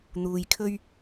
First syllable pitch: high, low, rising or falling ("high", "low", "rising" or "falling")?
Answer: low